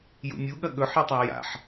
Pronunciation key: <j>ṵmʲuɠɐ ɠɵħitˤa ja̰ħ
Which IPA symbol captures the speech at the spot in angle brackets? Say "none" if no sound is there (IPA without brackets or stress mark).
j